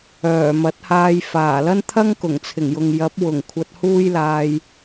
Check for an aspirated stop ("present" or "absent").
present